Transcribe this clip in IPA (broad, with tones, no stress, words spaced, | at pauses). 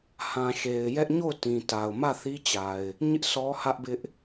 hã˨ʃe˨ɪ̯ jɛ˦ʔɲo˦˨ʊ̯tĩ˨ ta˨ʊ̯ mä˦˨θi˦t͡ɕa˨ɪ̯ | ɲɪ˦ʔ sʰɔ˦hä˦ʔbɪ˦ʔ